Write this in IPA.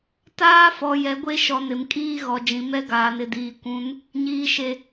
t aː˦ f ɔ˨ j ɛ˨˦ ɡʷ e˦ ʃ ɔ˨ n ɪ˨ m kʼ iː˦ ɣ ɔ˨ d͡ʒ ĩ˨ m ɛ˦ ɡ aː˨ n ɪ˨ d iː˨ kʷ ũ˨˦ n | ɲ iː˨ ʃ e˨

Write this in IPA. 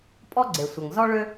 pʼ ɔ˥ ɡ͡ǀ e˩ sʷ ɐ˩ ŋ z ɔ˥ ɭ ø˥

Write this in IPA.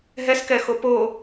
ɦ ɛ s k ɛ x o p o

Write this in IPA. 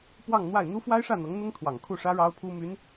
p w ɑ˥˧ ŋ n̪ w a˥˩ ɪ̯ n̪ u˥ f w a˥ ɪ̯ ʂ ä˥˩ n̪ ɤ˧˥ ŋ n̪ ʊ˥ ŋ t̪ʰ w ɑ˨˩ ŋ kʰ u˥˩ ʂ ä˥ ɻ ɑ˥ ʊ̯ pʰ u˥ m y˧˥ n

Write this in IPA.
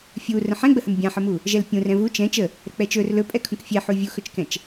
fʲ u r ə̃ ħ ɛ̃ ɡ͡b ə h ə m bʲ ã ħ ə m u | ʒ ɛ l pʲ ũ r ɛ̃ v u t͡ʃ ɛ̃ t͡ʃ ə | ɾ ə k͡p ɛ t͡ʃ ɵ r l ɵ pʼ ɛ kʰ ũ k fʲ ɛ ħ u vʲ u x ɵ t͡ʃ k ɛ̃ t͡ʃ

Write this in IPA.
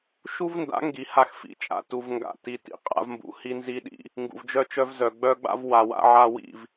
ʃ u˦ v n d a̰˨˦ ŋ ɡ i˨ h a˦ x f ḭ˧ t͡ʃʼ a̰˧ t u˨ v ŋ ɡ a̰˨ t i˨ t ḭ˨ qʼ a̰˧ v m b ṵ˨ h i˦ n z i˦ ɗ ḭ˦ | ŋ ɡ ṵ˨ v d͡ʒ œ˧ t͡ʃ œ˧ v z œ˨ ɡ͡b œ˦ ɡ͡b a̰˦ v w a˨ w a̰˧ ʕ a˧ w ḭ˦˨ v

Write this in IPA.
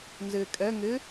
n z ɪː kʼ ɛ ŋ ɪ

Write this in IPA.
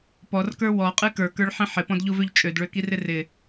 p ɔ r k ə˞ w ɔ qʼ ɨ k ə˞ k ə˞ ɭ ħ ĩ ħ ɪ p ɔ̃ d ʎ u v ø ʎ t͡ʃʼ ø d ɭ ø k i r ɪ r ɪ

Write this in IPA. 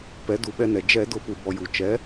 p ɛ˩˥ d u˩˥ ɓ ɛ˧ n ɛ˩ d͡ʒ ɛ˧˩˧ d ʊ˧˩˧ p u˩ b ɔ˩ j u˩ t͡ʃ ɛ˩˥

